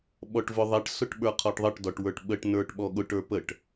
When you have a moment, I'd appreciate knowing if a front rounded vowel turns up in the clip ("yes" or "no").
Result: no